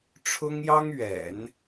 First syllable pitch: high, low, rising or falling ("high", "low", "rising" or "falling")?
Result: high